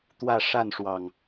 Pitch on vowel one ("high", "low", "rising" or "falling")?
falling